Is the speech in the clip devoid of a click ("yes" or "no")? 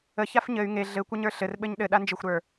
yes